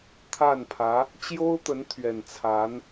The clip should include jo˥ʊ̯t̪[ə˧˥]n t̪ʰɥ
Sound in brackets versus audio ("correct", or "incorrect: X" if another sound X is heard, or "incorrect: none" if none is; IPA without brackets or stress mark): correct